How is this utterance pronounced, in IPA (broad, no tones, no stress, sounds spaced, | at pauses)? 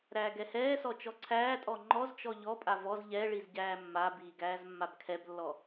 ɾ æː ɡ ɛ h ɛː s ɔ t͡ʃ ɔ ǀʰ æː tʼ ɔ ŋ͡ǃ ɔ z t͡ʃ ɔ ʎ ɔ pʼ a v ɔ z ʎ ɛ ɭ i z ɟ æː mː a b iː ɡ æː z mː a b kʰ ɛ b lː ɔ